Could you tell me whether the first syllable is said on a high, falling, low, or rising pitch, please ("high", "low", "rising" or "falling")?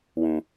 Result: high